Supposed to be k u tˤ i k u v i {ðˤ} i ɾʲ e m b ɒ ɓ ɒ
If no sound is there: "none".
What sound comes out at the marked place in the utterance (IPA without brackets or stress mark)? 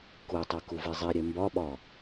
zˤ